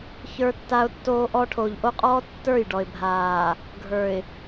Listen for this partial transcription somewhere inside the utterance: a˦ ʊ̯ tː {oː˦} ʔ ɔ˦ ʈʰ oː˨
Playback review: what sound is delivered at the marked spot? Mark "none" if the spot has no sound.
oː˦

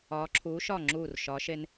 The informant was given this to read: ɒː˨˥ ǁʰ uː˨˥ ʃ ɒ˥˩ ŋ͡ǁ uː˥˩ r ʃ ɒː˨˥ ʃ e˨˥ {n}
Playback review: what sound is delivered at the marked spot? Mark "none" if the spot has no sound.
n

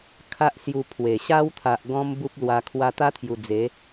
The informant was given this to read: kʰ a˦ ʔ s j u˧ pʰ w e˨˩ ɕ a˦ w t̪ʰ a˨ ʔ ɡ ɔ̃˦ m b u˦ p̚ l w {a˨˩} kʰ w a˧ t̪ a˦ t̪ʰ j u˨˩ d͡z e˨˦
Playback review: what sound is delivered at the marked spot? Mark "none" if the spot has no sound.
a˧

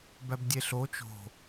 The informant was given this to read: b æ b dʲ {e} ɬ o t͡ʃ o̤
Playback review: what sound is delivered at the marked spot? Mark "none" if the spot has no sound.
e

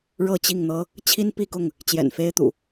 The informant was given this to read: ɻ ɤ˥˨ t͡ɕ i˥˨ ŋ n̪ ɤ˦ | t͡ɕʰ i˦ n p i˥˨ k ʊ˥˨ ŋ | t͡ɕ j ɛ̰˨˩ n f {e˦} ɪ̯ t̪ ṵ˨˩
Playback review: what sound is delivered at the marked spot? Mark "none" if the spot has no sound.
e˦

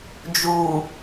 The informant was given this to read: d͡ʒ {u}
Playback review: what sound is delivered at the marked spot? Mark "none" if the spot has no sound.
u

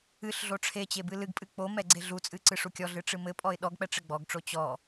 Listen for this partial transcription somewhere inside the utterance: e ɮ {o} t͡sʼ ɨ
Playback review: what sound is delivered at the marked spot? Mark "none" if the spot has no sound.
u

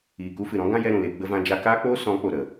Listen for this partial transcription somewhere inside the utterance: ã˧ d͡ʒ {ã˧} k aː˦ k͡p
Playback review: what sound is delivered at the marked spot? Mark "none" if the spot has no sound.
a˧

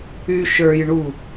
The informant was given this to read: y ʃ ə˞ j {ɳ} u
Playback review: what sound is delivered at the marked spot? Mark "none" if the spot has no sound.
ɳ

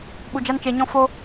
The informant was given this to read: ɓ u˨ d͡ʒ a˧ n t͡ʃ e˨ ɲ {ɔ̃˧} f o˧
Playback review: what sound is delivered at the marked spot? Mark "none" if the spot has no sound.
ɔ̃˧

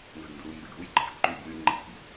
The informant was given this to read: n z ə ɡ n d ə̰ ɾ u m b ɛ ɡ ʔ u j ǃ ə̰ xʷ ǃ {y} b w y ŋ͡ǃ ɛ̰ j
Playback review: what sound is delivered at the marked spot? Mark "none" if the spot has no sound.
y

